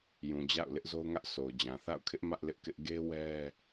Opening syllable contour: low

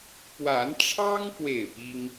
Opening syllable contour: rising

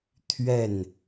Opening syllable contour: falling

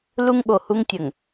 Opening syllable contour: high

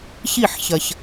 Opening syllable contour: falling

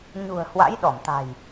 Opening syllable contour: low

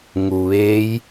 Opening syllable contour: low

